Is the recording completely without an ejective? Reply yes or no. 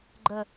yes